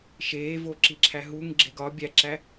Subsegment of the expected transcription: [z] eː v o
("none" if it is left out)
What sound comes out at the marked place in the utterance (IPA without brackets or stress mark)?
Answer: ʃ